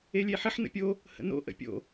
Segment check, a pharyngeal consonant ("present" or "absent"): present